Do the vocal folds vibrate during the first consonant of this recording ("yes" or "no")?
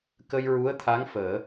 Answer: no